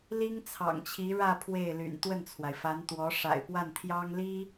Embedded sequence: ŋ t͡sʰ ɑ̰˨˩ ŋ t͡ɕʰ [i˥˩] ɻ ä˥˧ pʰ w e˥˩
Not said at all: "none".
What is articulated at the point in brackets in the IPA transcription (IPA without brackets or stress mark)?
i˧˥